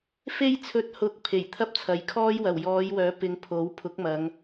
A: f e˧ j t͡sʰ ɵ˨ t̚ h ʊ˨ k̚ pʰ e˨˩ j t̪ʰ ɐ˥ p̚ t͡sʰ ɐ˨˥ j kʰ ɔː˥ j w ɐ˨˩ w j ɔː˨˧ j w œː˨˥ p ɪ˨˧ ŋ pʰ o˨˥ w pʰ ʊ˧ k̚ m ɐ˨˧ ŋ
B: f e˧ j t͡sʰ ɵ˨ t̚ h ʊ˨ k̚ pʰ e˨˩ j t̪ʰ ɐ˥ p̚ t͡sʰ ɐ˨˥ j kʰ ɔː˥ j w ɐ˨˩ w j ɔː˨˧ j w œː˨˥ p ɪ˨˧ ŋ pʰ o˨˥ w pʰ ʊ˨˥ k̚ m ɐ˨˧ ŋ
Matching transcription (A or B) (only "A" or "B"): B